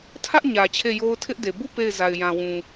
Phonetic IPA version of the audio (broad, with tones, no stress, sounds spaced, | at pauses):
tʰ ä˦ ʔ ɲ ä˨ t͡ɕʰ e˦˨ j o˦ ʊ̯ tʰ ɪ˦ ʔ d e˨ b u˦˨ p e˦˨ ɪ̯ z a˨ ɪ̯ j ã˨ w ũ˨